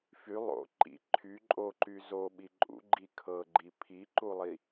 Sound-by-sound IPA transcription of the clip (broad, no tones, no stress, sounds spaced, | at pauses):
f y lˠ o̰ ǃ ḭ ǃʰ y ǃʼ o ǃ y z o ɓ i ǃʼ ṵ ɡ͡ǃ i kʰ ɤ ɡ͡ǃ i pʰ i ǃ u lˠ i